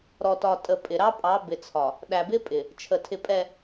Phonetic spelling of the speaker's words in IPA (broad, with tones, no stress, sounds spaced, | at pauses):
ɾ ɔ˨ t ɒ˨ tʼ ə˨ pʼ ɪ˨ ɾ ɑ˦ pʼ ɑ˨˦ b ɪ˨ t͡sʰ ɒ˨ | ɗ æ˨ b ɪ˦ pʼ ɪ˨ | t͡ʃʰ ə˨ tʰ ɪ˨ pʼ ɛ˨